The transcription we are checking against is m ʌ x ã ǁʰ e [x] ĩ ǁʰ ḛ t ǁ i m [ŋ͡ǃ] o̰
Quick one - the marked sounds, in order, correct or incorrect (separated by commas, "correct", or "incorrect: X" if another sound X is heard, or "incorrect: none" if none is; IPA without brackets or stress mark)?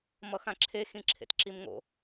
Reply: correct, incorrect: ŋ